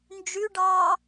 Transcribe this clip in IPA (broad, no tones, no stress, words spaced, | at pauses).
nd͡ʒyɖɑː